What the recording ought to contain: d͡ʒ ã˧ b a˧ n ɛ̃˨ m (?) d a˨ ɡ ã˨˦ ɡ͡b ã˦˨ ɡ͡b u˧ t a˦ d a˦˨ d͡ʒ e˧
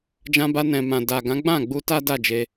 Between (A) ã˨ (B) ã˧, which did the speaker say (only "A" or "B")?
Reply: A